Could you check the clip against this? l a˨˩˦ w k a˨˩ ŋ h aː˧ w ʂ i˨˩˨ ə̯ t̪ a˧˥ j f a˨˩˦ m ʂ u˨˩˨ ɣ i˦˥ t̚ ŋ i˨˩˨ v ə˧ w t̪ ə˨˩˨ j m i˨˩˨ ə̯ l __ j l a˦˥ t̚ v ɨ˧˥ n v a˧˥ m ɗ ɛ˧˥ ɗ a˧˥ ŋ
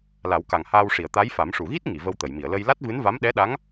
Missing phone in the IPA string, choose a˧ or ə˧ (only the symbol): ə˧